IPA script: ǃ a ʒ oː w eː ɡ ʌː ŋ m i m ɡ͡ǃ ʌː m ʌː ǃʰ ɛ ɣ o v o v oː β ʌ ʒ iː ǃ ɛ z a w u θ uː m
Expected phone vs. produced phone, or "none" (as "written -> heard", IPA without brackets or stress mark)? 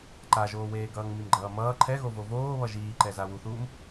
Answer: none